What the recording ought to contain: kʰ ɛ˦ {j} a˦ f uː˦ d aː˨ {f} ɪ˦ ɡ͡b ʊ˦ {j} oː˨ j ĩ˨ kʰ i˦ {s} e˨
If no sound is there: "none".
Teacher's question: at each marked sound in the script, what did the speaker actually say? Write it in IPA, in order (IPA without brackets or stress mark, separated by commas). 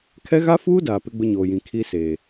ɣ, p, ɲ, s